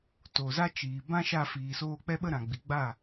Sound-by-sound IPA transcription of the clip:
to˨za˦t͡ʃiː˨ bã˦ʃa˧ fiː˨soː˧k͡pɛ˦ ɓə˧ ɾã˨ ɡ͡bi˨ɡ͡ba˦˨

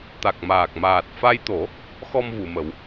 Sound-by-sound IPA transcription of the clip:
t̪a˨˩k̚maː˨˩k̚ maː˨˩t̚ fa˧jt̪o˨˩˦ | xɔ˧m vu˨˩˨mə˨˩˦w

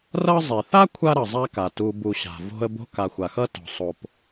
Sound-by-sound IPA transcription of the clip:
rʌ˦ zˤe˩θa˦ kʷʰa˥ɾʌ˩zˤa˦ka˩ tu˨bu˨ɕa̤˩ vo̤˦ə̯bo̤˥ ka˨xʷa˩xʌ˥to̤˩ sˤo˩p

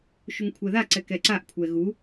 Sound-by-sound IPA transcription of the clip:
ʃuŋkʷʰɛða ǀɛkɛǀaʔ kʷʰɛɣu

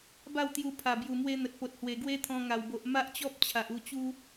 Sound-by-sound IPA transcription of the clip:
ba˥˧wt̪ju˧pʰa˨˩ bju˨˩mwe˧ n̪ə˨t̚po˨t̚hwe˨˩ ɡwe˦t̪ʰɔ̃˧ŋa˨˩wbo˨ʔ ma˦ʔt͡ɕɔ˦p̚ t͡ɕʰa˨ʔu˧t͡ɕu˦

